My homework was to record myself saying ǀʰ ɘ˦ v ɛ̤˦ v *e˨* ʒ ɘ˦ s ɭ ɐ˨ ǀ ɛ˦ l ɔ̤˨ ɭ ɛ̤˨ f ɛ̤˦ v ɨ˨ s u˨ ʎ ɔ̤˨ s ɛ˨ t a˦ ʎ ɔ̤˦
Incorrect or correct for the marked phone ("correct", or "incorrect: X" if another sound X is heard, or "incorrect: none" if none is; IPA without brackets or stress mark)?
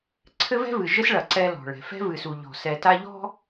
incorrect: ɨ˨